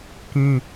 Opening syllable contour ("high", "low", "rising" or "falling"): high